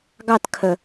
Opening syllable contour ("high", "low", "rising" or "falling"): falling